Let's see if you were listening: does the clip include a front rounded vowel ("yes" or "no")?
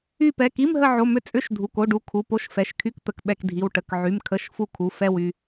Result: yes